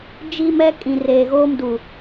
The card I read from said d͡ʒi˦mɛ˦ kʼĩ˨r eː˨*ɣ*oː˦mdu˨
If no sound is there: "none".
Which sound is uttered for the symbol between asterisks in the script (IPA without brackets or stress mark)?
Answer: ɣ